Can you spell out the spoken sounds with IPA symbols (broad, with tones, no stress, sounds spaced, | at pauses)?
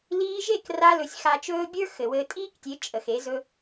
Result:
l iː˧ ʒ e˦˨ k r a˧ l ɵ˨ sʲ x a˧ t͡ʃ ɵː˦ bʲ ə˞˦ x ɘ˨ w ɘ˧ tʼ iː˦ k tʲ e˨˦ t͡ʃʼ ə˨ x e˨˦ z ɵ˧